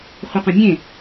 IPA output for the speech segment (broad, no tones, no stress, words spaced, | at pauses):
χʷɪqõmʲẽ